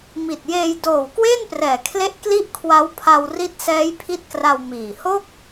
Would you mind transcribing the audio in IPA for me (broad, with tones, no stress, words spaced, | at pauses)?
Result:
mi˨˩t̚jeː˧j doː˨˩w kweː˥˩nprɛː˨˩kʰle˦˥ʔ kli˥˩ʔkʰwa˦˥w pʰa˧wri˦˥t̚sɛː˦˥j pʰi˦˥t̚kra˧w miː˨˩ ho˥˩k̚